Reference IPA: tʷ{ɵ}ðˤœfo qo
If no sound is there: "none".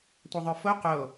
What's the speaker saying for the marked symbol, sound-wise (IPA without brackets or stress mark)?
œ